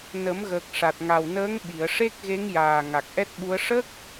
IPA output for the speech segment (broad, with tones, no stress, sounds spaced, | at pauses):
n ə˨˩˦ m ɣ əː˨˩ k̚ ʂ a˨˩ t̚ ŋ a˨˩ w n əː˧˥ ŋ ɓ i˨˩˨ ə̯ ʂ e˦˥ k̚ ɣ e˧˥ ŋ j aː˨˩ ŋ a˨˩ k̚ ʔ ɛ˦˥ t̚ ɓ u˧˥ ə̯ ʂ ə˦˥ k̚